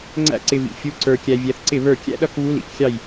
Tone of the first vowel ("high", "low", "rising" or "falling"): high